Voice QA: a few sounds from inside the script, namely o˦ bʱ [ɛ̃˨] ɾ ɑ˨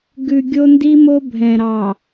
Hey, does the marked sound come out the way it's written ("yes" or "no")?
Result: yes